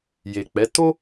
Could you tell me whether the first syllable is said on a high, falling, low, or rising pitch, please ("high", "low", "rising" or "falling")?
low